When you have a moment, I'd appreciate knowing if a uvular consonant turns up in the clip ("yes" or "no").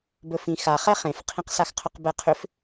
yes